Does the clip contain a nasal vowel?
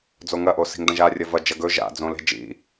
yes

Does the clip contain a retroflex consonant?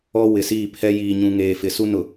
no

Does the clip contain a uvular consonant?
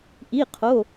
yes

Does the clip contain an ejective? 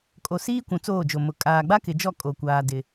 yes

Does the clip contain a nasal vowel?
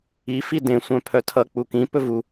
yes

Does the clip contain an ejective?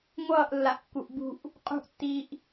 yes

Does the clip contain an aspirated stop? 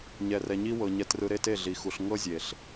no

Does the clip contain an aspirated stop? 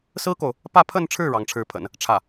yes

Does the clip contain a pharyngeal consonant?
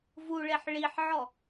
yes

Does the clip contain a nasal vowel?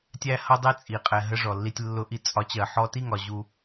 no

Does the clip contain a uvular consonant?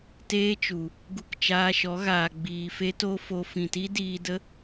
no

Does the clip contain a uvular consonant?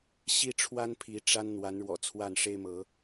no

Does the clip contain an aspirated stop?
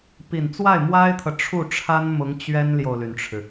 yes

